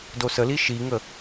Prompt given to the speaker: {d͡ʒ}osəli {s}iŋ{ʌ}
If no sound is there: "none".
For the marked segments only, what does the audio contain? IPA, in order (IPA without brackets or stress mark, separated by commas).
d, ʃ, ə